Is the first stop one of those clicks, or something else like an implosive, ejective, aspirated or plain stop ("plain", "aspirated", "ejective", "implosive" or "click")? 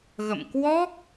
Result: plain